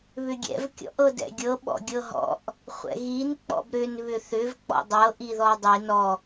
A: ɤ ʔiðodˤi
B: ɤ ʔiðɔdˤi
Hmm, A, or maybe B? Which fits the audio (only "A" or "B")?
B